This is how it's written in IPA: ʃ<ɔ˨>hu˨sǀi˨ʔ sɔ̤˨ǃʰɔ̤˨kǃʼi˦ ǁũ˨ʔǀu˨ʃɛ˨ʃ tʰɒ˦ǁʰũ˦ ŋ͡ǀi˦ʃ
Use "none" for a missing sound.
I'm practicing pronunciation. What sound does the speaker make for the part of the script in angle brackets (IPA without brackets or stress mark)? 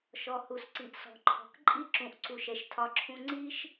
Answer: ɔ˨